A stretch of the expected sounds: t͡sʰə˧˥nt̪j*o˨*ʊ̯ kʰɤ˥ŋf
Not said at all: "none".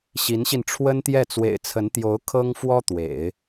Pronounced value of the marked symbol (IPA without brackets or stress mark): o˧˥